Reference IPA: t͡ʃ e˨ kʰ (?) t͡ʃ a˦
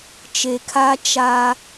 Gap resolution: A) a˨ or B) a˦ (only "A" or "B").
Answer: B